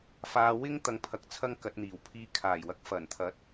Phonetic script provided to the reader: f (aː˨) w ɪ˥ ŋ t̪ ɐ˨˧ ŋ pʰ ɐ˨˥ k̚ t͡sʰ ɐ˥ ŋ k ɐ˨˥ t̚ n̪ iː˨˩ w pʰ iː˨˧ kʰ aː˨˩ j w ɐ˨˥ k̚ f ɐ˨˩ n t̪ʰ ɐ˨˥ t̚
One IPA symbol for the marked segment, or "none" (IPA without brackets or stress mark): aː˧